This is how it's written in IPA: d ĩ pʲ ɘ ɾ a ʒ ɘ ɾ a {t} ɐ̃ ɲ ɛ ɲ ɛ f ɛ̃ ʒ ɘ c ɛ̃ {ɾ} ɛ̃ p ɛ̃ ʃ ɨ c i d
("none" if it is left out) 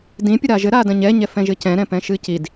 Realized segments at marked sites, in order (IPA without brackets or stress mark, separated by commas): d, ɾ